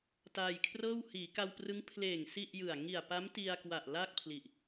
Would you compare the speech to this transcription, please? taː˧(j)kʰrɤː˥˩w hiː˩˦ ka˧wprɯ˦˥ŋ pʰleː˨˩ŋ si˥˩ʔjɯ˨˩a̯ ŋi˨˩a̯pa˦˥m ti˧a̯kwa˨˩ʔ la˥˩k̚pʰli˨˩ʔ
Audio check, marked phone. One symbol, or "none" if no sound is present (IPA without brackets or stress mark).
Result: j